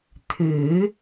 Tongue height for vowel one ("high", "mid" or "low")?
high